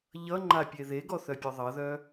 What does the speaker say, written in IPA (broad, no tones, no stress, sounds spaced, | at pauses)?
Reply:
ʎ ʌ ŋ͡ǃ a pʲ e ð e ɡ ɔ θ œ pʲ œ ðˤ ʌ ð œ